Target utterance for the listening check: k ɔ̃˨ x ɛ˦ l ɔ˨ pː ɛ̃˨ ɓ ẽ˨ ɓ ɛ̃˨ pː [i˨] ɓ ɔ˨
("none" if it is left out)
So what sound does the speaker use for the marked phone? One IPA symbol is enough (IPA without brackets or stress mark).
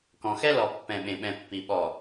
i˨